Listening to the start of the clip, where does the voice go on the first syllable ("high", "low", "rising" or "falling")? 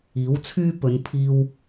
rising